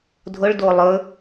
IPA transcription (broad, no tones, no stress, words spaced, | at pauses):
dʱʊɭ dolˠɵ